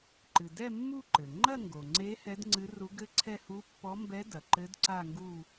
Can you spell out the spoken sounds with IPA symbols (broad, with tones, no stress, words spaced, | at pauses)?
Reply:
ǃɨ˩dɛ˥˧ mːu˥˧ǃɘ˩ ŋ͡ǃɐ˥˧ŋɡo˩ŋ͡ǀe˧˥ hɛ˧˥dŋ͡ǀɨ˧˥ ru˧˥ɡɘ˥˧ǀʰɛ˥˧ hu˧˥pːɔ˧˥mbɛ˧˥ dɐ˩ǃɘ˧˥d ǀa˥˧ŋɡu˥˧